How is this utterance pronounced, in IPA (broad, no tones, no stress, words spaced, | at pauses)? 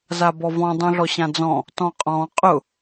zabɔvɔ̃ dˤũɮɔɕãd͡zɔ̃ | tɔ̃qʼɔ̃ qʼʊ